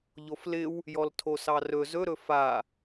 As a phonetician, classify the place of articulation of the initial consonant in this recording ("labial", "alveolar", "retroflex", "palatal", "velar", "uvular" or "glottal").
palatal